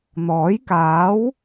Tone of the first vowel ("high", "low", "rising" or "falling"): rising